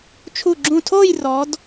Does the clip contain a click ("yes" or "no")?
yes